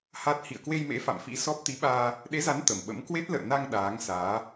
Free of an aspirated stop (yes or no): yes